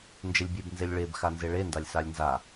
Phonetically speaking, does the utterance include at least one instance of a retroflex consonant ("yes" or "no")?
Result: yes